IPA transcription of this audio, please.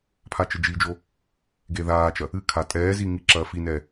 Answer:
pʰat͡ʃɘd͡ʒid͡ʒo | ɡeðaːt͡ʃɐ | ɨkʰa tʼɛːzi ŋiǁɐːfinɛː

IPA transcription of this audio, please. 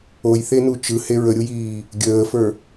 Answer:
ojθenu t͡ʃɯhe ɹəɾʲujiː | ɡʲəːfə˞

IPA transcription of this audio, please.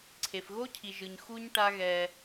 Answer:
ǀʰe˨fɣo˦cʰi˨ʒɯ˨ɲ xu˦ɲ ʈa˦ɣɛ˧

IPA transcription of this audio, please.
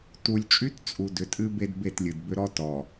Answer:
tu˨lʲt͡ʃʼy˦t t͡sʼu˨dʏ˨tʼɨ˦ be˦dbe˦˨tlʲɨ˨dbʏ˦ ɾɔ˦tɔ˨

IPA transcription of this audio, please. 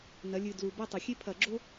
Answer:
nɐ˩˧lʲɨ˨˩ dlu˨˩bɐ˦˨tˤɐ˨˩ xʲe˥pʰɐ˧˩˧ɡ͡ǁo˥

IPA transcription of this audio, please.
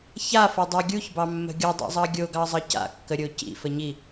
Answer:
çafʌdˤɑ ɡʲuçbɑmːə̤ ɡʲʌdˤa̰zˤɑ ɡʲoɡɑzˤʌ ca̰kːəɾʲo cḭfəɲi

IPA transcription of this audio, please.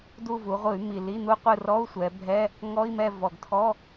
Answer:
du˦˨vu˩˧ ʁʷɯ˧˩˧y̯mi˨˩ li˧˥˧n̪u˦˥qʷɯ˦˨ rɔ˧˥˧u̯ sʷɛ˩˧bʱɛ˧˥˧ | ŋɔ˧˥˧i̯mɛ˦˨ vɔ˨˩ɡtʰɔ˧˥˧

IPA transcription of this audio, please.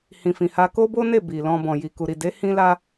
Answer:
hĩ˨fĩ˨ha˧ ko˦bo˦ne˦˨ bi˨lɔ̃˧ bɔ̃˨ji˨ku˨ ɾi˨de˨˦ hĩ˦la˦

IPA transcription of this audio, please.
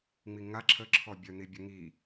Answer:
ŋ͡miŋa ǁʰə ǁʰɔbʲœn̪ibʲə ŋi

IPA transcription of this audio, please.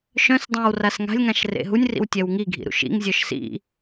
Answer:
ʃœ̃sdˤœ̃w rasŋa̤lʲŋãʃ rḛɦunʲrḭw tʲɛwŋiɡʱḭ ɾṵʃḭŋzʲœʃ sḭ

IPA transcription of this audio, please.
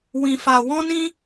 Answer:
wĩ˧fa˧ wɔ̃˦nĩ˦

